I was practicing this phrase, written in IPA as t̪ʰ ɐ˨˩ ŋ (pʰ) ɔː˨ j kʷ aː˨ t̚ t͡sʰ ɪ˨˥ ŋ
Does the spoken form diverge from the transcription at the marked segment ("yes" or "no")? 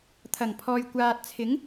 no